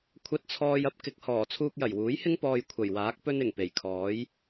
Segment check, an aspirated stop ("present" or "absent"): present